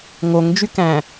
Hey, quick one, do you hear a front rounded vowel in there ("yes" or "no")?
yes